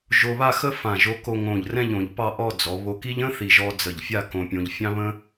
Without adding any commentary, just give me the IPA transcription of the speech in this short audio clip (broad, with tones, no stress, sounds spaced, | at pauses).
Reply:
ʒ o˧ β a˥˧ x ə˥ f ã˧˩ ʒ o˧ k o˧ ŋ õ˧˩ ʎ r ɛ̃˥˧ ʎ õ˩˧ ʎ p ɑ˥˧ ʔ ɔ˥˧ d͡z ɔ˩˧ β o˧ k i˥ ʎ ə̃˥ θ i˧˩ ʒ ɔ˧ d͡z ə˧˩ ʎ fʲ a˥˧ k õ˧ pʲ õ˧ ʎ fʲ ɑ̃˥ β ə̃˥